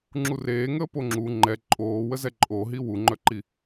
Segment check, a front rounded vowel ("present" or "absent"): present